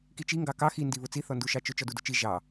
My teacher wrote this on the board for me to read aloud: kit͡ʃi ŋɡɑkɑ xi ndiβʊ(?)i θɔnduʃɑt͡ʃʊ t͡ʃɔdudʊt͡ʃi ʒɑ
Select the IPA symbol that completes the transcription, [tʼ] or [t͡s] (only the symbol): t͡s